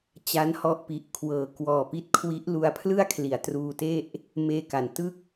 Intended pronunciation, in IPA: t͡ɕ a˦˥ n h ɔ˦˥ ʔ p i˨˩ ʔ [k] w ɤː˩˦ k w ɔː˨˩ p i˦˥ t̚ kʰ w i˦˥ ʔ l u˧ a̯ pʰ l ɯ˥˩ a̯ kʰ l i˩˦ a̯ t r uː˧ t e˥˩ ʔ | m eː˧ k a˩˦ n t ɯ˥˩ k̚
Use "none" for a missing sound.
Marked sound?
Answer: kʰ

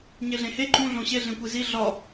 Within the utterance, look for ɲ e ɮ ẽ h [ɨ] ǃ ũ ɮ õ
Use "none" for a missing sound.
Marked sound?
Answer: e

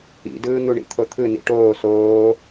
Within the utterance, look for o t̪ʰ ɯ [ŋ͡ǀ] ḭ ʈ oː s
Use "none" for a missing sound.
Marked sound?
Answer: n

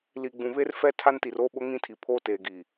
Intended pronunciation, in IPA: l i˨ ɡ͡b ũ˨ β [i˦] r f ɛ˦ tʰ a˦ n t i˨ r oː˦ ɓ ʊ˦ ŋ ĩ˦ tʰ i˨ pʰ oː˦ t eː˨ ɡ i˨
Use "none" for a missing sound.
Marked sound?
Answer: e˦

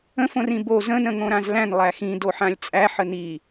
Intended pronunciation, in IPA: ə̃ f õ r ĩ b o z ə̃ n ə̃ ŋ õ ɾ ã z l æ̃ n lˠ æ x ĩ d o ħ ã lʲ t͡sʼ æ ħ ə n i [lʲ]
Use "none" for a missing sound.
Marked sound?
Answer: none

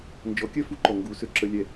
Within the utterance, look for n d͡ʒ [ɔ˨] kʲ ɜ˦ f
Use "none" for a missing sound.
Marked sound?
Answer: ɔ˨˦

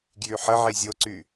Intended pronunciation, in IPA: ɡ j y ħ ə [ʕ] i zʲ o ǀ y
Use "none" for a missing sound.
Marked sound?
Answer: ʕ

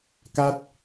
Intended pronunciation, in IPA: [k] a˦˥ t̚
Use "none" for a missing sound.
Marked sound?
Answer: k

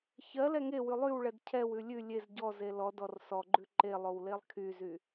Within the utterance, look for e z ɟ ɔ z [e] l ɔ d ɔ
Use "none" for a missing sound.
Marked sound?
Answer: e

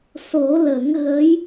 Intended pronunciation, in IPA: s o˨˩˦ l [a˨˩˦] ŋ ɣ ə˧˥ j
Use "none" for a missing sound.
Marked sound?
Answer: ə˨˩˦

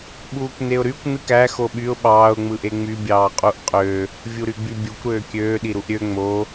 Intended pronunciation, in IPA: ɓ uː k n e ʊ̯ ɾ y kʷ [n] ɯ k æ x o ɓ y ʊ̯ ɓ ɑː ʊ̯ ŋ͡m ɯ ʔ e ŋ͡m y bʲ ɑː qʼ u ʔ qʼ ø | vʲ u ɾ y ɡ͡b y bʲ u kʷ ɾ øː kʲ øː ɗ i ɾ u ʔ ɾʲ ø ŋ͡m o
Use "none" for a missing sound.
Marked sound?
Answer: n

